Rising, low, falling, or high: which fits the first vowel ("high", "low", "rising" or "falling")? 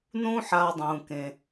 high